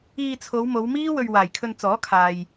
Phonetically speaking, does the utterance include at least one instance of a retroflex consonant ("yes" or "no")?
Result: no